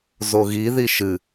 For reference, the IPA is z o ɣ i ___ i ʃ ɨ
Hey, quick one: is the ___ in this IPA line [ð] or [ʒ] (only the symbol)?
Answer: ð